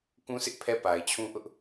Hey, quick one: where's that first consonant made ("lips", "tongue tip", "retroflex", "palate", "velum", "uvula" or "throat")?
velum